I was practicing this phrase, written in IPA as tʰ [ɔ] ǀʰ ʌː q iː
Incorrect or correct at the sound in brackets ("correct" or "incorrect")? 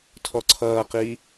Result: correct